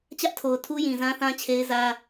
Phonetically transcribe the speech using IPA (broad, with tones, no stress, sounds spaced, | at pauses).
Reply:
t͡ɕ ä˦ ʔ tʰ o˨ ʊ̯ tʰ u˦ j ĩ˨ z ã˦ θ ã˦ t͡ɕʰ e˦ ɪ̯ z ä˦